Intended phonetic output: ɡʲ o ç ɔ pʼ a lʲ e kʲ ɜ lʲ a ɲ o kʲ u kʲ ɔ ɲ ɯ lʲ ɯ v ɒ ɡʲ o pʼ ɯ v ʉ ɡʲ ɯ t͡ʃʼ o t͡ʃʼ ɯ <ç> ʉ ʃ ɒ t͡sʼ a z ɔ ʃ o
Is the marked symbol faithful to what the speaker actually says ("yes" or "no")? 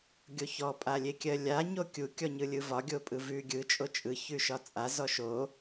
yes